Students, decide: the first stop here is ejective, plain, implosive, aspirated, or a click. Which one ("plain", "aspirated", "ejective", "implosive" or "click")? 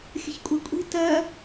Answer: ejective